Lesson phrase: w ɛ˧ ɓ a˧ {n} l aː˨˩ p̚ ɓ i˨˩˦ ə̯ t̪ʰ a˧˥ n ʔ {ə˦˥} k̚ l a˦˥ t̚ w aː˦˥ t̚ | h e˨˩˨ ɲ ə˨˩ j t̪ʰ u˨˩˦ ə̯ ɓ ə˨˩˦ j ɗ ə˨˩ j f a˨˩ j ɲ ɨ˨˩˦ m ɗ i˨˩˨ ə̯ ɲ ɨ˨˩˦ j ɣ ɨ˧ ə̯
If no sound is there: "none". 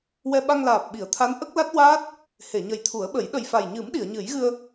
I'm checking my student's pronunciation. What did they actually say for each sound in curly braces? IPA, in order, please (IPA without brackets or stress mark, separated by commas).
ŋ, ə˦˥